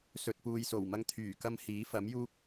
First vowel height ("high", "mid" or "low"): mid